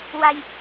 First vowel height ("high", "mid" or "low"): low